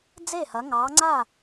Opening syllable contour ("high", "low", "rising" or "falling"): falling